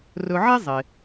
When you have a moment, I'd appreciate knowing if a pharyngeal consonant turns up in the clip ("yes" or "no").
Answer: yes